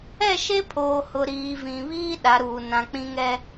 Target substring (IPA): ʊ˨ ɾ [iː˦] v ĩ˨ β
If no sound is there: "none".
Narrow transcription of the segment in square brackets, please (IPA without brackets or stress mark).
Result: iː˨